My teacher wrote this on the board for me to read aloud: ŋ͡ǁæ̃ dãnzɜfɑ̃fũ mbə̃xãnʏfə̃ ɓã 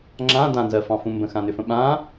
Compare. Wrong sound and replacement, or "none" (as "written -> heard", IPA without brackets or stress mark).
æ̃ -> ã